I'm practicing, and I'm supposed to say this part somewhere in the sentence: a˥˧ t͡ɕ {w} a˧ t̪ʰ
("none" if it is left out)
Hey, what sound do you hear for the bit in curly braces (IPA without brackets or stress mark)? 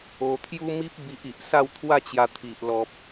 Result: j